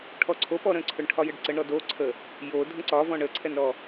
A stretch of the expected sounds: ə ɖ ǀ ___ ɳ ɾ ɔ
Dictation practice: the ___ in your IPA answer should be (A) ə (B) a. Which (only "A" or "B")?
A